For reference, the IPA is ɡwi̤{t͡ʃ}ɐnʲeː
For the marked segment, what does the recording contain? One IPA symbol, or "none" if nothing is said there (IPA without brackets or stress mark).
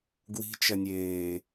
t͡ʃ